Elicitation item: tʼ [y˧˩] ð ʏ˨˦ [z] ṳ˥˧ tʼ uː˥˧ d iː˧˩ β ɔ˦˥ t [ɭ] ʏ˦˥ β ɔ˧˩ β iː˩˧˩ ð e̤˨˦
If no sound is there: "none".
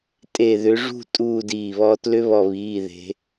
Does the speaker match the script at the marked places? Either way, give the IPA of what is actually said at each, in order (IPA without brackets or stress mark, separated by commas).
e˧˩, ʐ, l